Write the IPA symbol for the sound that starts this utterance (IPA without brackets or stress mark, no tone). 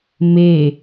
m